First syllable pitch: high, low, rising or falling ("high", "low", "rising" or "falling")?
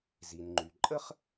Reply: low